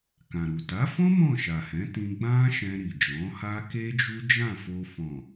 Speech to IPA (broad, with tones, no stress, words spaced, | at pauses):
kã˨ɾu˨ ta˨˦fɔ̃˦ mɔ̃˦˨ʃa˨hɛ̃˨˦tĩ˧ ɡ͡bã˦ʃɛ̃˧ ɾi˨d͡ʒɔ̃˨˦ha˦ ke˦d͡ʒu˦d͡ʒã˦˨ fo˧ fɔ̃˨